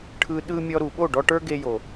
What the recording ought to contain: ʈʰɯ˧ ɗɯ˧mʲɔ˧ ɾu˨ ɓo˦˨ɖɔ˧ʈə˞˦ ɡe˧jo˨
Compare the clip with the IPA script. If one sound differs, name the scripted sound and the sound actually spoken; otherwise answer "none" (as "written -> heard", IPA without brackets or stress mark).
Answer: none